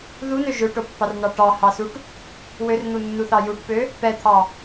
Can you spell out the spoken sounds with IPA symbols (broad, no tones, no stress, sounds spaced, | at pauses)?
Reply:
ð u n ø ʒ ø ʈ o pː ɑ r n ɑ ʈ ɑ h ɑ s u ʈ | w ø r n̪ u nː u θ ɑ j u ʈ p ø | p ɛ t̪ʰ ɑ